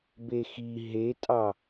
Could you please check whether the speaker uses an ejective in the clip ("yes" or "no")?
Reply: yes